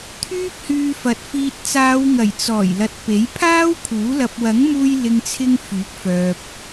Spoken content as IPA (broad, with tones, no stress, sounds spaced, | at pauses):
t̪ʰ yː˥ p̚ h yː˧ f ɐ˨˥ t̚ f iː˨ t̚ t͡s aː˨˧ w ŋ ɐ˨˩ j t͡s ɔː˨˩ j l ɐ˨ t̚ p e˨˥ j pʰ aː˥ w kʰ uː˨˥ l ɐ˧ p̚ w ɐ˨˥ ŋ m uː˧ j l ɪ˨ ŋ t͡sʰ ɪ˧ ŋ f yː˨˥ k̚ f œː˨ p̚